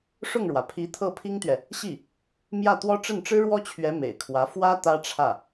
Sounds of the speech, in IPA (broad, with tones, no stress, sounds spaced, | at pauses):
ʂ ʊ˥˩ ŋ ɻ w ä˩ pʰ i˧˥ t̪ʰ ɤ˥˩ pʰ i˥ ŋ t̪ ɥ ɛ˨ | ɕ i˥˩ | m j ä˥˩ t̪ w ɔ˥ ʈ͡ʂ ə˥˩ n ʈ͡ʂ ɻ̩˥ ɻ w ɔ˥ t͡ɕʰ ɥ ɛ˧˥ m ḛ˨˩ ɪ̯ kʰ w ä˧˥ f w ä˥ t̪ ä˥ ʈ͡ʂʰ ä˥˩